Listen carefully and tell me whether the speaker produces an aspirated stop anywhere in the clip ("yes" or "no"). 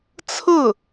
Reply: yes